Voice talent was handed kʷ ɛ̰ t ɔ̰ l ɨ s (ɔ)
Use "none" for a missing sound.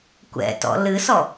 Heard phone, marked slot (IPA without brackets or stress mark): ɔ